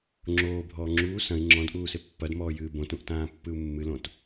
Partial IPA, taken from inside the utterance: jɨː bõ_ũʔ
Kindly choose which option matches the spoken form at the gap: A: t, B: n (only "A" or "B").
A